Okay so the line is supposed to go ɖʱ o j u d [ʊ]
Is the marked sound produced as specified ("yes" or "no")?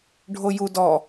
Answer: no